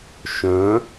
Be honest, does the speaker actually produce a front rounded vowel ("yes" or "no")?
yes